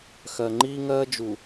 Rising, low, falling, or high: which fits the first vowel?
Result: low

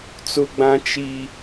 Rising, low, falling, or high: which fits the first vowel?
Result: high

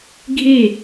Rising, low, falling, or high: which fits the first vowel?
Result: falling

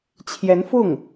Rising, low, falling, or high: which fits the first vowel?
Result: rising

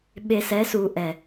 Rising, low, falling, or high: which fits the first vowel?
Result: low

